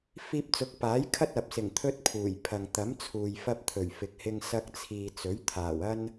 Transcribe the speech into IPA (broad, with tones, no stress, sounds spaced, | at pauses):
f iː˧ p̚ t͡s ʊ˨˥ k̚ p aː˨˥ j kʰ ɐ˥ t̚ ɐ˨ p̚ s ɪ˨˩ ŋ t̪ʰ ɵ˧ t̚ pʰ uː˨˩ j pʰ ɐ˨ ŋ t̪ ɐ˨˥ m t͡sʰ uː˨ j f ɐ˧ p̚ t̪ʰ ɵ˨˩ ɥ f ɪ˨ k̚ h ɪ˧ ŋ s ɐ˧ k̚ t͡sʰ iː˨ t͡s ɵ˨˥ ɥ t̪ʰ aː˨˩ w ɐ˥ n